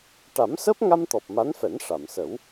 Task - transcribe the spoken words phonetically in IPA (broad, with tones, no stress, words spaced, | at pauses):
ʈa˨˩˦msəː˦˥p̚ŋa˧mt̪ɔ˨˩p̚ ma˧˥nfɛ˨˩˦n ʂa˨˩˨msə˨˩˦w